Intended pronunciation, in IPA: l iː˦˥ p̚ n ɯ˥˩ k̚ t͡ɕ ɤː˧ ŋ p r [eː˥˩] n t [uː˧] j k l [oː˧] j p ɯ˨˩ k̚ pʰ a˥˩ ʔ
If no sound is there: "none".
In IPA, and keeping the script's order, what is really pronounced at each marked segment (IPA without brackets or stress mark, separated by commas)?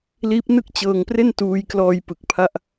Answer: e˥˩, uː˧, ɔː˧